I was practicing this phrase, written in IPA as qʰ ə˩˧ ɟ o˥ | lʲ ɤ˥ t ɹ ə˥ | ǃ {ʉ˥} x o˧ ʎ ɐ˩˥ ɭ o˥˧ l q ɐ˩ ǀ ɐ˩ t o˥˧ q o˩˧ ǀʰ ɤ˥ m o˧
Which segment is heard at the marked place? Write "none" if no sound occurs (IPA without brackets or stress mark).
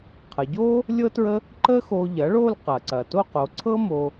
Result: ə˥